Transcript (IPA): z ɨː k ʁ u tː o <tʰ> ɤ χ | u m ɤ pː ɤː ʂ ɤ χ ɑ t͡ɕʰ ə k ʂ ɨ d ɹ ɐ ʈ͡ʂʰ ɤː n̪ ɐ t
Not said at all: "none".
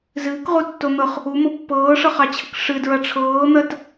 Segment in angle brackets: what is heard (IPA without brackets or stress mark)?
n̪